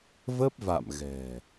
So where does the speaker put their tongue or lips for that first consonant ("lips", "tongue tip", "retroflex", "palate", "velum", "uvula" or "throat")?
lips